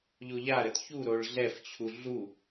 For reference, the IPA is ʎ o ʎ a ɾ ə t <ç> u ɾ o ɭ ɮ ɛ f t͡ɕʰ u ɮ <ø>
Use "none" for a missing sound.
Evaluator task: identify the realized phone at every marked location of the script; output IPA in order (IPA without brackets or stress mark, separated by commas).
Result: ç, u